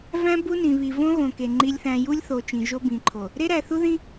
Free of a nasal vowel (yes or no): no